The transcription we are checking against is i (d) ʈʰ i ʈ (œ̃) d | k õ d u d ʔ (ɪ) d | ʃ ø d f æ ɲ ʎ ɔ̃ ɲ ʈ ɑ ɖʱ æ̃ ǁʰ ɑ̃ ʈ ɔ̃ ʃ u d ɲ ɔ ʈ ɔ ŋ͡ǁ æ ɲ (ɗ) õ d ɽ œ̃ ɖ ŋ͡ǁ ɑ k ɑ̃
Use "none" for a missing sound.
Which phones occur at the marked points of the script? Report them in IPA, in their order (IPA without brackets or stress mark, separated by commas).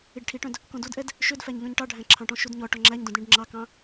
ɖ, œ̃, ɛ, d